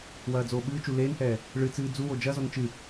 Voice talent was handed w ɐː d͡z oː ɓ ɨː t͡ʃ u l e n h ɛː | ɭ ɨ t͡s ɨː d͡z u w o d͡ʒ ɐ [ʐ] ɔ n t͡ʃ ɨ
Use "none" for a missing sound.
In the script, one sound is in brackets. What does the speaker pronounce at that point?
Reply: z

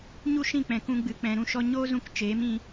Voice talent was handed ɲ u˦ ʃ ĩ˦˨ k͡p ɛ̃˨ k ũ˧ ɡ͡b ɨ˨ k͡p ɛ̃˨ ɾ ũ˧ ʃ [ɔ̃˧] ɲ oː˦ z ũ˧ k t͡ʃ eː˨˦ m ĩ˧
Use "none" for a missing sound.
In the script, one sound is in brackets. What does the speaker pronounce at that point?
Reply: ɔ˧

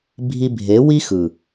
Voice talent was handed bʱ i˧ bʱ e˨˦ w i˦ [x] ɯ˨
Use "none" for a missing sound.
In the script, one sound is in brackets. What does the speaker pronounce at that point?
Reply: x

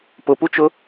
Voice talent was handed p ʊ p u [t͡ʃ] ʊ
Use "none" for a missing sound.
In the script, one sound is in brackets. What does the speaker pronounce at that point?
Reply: t͡ʃ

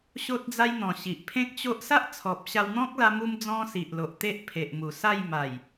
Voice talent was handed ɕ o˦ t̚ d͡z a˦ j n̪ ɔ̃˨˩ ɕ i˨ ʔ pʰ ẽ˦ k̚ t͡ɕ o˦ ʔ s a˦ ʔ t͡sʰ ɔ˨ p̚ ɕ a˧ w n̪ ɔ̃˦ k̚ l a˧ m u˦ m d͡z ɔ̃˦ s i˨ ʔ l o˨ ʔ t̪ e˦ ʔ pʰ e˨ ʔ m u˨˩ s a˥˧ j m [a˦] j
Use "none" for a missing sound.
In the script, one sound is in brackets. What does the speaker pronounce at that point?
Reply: a˨˩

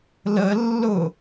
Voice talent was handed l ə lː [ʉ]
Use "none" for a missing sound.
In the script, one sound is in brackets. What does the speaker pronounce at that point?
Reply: ʊ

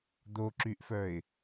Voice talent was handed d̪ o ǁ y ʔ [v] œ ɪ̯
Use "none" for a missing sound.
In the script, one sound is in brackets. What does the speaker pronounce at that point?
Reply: f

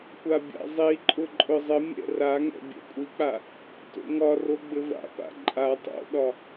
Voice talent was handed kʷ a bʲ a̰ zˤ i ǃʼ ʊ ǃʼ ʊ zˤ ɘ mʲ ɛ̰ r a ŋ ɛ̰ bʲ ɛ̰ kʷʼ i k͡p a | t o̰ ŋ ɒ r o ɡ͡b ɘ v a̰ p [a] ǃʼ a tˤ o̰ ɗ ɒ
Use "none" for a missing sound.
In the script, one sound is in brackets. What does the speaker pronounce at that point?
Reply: a̰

